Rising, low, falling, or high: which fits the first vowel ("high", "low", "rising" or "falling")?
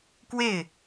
falling